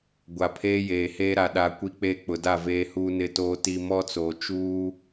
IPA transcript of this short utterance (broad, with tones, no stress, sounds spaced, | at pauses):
ɡʷ a˨ pʰ eː˦ j eː˨ h eː˦ ɾ a˨ ɗ a˨ kʷ i˦ k͡p eː˦ k͡p ʊ˨ d a˦˨ v eː˨ h uː˨ n ɪ˨ t oː˨ t i˨ m ɔ˦ t͡s oː˨ t͡ʃ uː˦